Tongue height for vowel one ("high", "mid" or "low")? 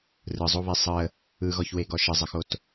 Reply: high